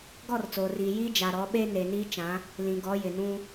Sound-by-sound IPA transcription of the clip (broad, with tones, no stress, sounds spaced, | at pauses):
ɡ ɔ˦˨ r t͡s oː˨ r iː˨ j iː˦ d͡ʒ a˨ ɾ ɔ˨˦ ɓ e˦ n e˨ n iː˦ t͡ʃ ã˨˦ | l ĩ˨ ɡ ɔ˨˦ j ɪ˨ n ũ˦